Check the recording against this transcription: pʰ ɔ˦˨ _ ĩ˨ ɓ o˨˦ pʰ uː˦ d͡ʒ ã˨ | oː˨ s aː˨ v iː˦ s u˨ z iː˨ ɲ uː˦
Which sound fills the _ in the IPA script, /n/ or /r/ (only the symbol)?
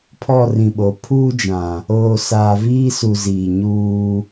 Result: r